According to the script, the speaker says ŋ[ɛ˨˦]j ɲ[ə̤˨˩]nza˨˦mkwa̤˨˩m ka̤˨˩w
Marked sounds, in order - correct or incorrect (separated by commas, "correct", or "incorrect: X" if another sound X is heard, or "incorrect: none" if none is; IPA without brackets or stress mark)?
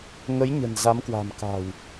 incorrect: ə˨˦, correct